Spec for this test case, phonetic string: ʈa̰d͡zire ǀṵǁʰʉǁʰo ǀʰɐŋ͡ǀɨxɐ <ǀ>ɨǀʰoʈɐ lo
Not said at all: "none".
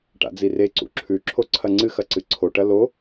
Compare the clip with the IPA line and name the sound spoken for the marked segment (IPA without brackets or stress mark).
ǀ